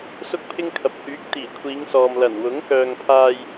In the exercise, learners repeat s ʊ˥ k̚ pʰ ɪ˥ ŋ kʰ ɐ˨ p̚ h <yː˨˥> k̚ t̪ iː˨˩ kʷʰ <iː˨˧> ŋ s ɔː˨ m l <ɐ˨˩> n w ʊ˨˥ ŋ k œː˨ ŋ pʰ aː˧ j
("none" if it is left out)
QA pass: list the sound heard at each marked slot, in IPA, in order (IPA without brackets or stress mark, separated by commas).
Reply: yː˨˥, iː˨˧, ɐ˨˩